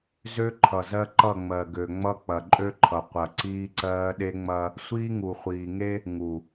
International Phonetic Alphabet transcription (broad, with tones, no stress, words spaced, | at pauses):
zø˦ ǃʰʌ˨zɜ˦ ǃʌ˦˨ŋ͡mɜ˨ɡø˨ŋ͡mʌ˦ k͡pɐ˨ǃʼø˦ǃʰʌ˨ qʷɐ˨ǀiː˦ǀɜː˦ ɗe˦ŋ͡mɐ˦ | sʷiː˦ŋu˨χʷiː˨ ŋe˦ | ŋu˨